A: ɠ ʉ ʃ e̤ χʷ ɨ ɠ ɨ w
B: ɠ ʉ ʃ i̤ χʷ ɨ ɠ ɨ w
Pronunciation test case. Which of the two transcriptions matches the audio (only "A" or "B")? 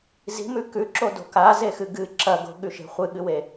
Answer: A